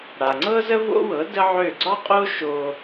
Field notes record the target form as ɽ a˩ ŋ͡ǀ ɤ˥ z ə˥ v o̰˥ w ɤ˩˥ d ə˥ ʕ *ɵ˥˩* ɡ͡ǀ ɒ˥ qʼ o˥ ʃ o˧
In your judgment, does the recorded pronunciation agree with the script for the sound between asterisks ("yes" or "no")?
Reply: no